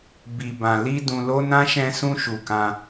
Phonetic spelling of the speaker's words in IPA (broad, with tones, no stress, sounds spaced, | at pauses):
b i˨ b ã˨ l i˧ d ũ˧ l o˦ n ã˦ ʃ ɛ̃˦ s ũ˦ ʃ u˧ k ã˧